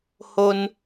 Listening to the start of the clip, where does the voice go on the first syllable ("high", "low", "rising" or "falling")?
high